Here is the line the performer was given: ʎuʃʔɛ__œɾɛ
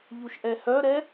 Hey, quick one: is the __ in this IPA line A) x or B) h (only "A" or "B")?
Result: B